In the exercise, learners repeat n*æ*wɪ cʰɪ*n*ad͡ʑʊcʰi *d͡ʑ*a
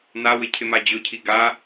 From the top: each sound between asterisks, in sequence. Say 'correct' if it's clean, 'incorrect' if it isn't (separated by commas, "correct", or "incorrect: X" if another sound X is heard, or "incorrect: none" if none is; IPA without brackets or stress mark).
incorrect: a, incorrect: m, incorrect: ɡ